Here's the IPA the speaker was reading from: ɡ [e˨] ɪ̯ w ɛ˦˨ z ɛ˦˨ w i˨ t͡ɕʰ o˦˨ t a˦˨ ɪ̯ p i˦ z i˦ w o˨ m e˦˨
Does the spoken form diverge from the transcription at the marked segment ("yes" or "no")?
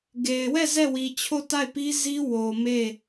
no